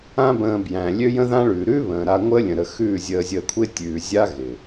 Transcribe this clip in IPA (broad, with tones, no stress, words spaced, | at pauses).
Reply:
ã˦ bə̃ː˧ bjæ̃˨lʲø˦ jə̃˦ðã˦ɭʉː˨ ɾʉ˦βə̃ː˨ɾa˧ ŋʷəː˦lʲə̃˨ɾə˧xʉː˦˨ zʲəː˧zʲəː˧kʷʰɪ˦ tʲʉː˧ zʲa˦ ɣɪ˨